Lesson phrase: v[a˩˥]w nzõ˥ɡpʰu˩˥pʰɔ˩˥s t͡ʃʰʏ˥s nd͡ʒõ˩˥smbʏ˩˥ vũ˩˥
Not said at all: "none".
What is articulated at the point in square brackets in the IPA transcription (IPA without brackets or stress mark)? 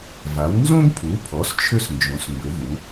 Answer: a˩˥